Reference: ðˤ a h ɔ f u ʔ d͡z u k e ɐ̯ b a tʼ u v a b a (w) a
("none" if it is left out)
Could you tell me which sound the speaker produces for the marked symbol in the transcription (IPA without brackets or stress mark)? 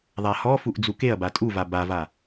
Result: v